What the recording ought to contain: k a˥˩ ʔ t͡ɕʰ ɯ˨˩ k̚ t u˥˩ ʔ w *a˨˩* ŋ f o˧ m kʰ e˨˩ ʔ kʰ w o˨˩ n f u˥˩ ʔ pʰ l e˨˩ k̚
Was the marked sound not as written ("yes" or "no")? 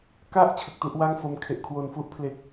yes